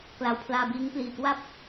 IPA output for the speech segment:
k l a˨˩ w pʰ l aː˧ b iː˦˥ ŋ p l iː˨˩ k w a˥˩ p̚

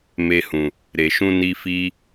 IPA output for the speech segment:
m e˧ h ũ˨ | ɾ e˨ ʃ ũ˧ n i˧ f i˦

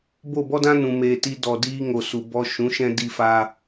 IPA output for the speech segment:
b o˦˨ b ɔ˦ d ã˦ n ũ˧ m eː˧ t i˦ d ɔ˨ d iː˧ ŋ o˨ s u˨ b ɔ˧ ʃ ũ˨˦ ʃ ɛ̃˧ d i˧ f aː˧

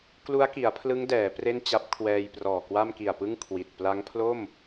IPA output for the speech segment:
k l u˦˥ a̯ k i˩˦ a̯ pʰ l ɯ˦˥ ŋ d ɛː˩˦ p r e˥˩ n t͡ɕ a˦˥ p̚ kʰ w ɛː˧ j p r ɔː˨˩ k w a˥˩ m k i˨˩ a̯ p ɯ˥˩ ŋ kʰ w i˨˩ t̚ p l a˦˥ ŋ pʰ l o˥˩ m

